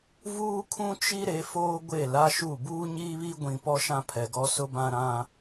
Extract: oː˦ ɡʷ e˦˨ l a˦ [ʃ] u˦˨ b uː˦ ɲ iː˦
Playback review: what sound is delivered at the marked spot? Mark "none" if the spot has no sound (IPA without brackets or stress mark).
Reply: ʃ